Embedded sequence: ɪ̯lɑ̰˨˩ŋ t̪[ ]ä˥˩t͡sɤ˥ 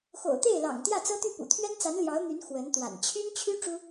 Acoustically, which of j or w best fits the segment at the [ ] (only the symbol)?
j